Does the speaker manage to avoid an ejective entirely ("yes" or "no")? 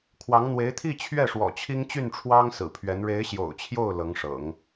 yes